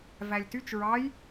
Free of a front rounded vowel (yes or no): no